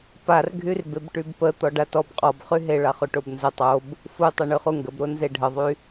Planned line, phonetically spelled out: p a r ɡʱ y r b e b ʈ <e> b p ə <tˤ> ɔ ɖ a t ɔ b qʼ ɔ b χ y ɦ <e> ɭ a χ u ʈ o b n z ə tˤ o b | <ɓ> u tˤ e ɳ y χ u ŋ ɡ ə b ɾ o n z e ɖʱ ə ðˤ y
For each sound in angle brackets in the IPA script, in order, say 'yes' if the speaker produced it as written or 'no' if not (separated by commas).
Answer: no, no, yes, no